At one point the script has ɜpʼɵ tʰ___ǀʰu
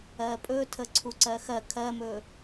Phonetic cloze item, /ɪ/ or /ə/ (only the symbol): ə